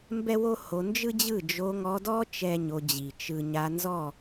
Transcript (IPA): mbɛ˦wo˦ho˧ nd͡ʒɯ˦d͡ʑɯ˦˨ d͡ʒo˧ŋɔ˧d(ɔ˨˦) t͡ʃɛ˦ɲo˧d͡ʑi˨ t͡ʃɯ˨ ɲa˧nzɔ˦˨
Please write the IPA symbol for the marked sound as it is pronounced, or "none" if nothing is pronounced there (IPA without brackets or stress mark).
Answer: ɔ˦